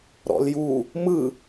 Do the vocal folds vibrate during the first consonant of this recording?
yes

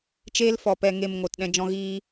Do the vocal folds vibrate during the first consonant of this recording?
no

